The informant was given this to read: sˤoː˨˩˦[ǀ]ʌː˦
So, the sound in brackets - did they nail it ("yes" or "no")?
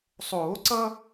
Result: yes